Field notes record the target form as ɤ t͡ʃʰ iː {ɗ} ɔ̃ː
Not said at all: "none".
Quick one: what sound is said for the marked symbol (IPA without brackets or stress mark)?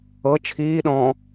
ɗ